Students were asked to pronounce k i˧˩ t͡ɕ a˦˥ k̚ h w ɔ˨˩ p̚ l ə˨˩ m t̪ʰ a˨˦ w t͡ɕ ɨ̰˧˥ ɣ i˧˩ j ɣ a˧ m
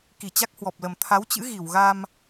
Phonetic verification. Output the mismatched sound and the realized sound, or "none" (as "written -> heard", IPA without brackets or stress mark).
j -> w